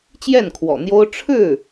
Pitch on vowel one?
falling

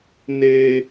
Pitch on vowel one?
high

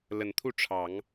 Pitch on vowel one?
rising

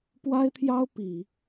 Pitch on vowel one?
high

